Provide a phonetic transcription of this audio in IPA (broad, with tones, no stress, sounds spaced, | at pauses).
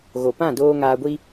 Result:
ɣ o˨ p ã˦˨ d oː˧ ŋ aː˧ ɡʷ i˦